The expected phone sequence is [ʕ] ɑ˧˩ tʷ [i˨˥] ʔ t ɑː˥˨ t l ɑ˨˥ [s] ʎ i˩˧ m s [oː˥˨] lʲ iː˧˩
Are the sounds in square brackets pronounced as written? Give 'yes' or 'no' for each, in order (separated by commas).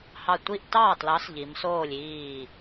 no, no, yes, yes